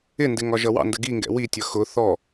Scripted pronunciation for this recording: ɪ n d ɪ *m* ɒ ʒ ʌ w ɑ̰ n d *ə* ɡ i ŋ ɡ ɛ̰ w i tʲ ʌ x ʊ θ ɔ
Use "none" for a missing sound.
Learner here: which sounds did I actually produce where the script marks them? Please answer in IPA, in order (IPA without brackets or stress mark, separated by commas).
ŋ, ə